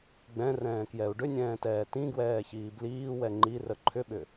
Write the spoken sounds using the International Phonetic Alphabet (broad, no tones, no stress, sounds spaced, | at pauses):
ɡ͡b ɛ̃ r ɛ̃ː k j ɛ u̯ ɖ ʏ nʲ ɛ̃ː t ɛː t ĩ ɡ w ɛː ç iː b l iː w ɛ ŋ͡ǃ i r ə ǃʰ ʏ ɓ ʏ